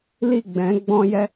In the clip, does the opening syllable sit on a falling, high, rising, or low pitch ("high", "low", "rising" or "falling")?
falling